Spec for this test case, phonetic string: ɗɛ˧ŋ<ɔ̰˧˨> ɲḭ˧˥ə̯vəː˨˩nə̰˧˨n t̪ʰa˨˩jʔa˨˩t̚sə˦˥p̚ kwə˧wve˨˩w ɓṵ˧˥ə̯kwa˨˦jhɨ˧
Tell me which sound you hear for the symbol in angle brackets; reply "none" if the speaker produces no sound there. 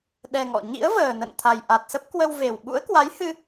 ɔ̰˧˨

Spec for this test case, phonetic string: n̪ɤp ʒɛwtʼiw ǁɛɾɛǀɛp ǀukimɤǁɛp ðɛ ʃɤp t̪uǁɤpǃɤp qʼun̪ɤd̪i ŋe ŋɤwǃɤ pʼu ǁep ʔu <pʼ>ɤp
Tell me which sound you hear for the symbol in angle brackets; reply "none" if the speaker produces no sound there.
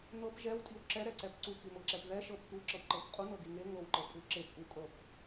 kʼ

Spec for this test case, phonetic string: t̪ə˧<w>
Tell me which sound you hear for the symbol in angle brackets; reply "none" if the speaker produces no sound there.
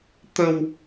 w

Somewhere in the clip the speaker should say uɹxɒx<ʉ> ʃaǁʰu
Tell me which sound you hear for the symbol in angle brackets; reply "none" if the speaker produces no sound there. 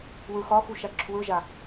u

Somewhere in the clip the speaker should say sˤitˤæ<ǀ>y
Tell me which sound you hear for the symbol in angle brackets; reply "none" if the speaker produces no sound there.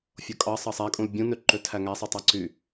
ǀ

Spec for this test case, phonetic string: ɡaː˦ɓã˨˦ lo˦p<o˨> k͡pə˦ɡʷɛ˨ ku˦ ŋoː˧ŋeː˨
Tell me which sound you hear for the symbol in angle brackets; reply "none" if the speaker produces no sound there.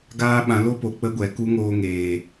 o˨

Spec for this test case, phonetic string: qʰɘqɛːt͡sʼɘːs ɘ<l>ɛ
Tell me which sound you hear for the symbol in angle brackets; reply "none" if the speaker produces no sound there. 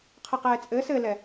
l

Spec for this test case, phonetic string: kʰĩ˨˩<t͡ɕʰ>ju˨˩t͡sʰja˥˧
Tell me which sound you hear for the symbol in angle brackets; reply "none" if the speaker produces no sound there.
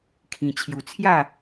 t͡ɕʰ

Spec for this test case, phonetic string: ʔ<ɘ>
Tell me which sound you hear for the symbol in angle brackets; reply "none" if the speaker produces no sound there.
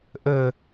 ɘ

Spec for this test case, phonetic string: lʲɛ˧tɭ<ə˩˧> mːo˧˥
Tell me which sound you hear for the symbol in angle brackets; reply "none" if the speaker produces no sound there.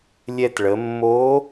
ə˩˧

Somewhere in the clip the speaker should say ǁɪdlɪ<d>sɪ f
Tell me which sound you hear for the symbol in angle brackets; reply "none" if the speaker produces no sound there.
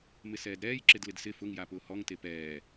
d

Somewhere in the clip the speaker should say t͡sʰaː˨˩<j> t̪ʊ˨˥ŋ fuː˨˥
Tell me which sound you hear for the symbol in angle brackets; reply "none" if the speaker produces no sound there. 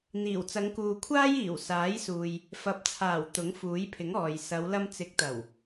w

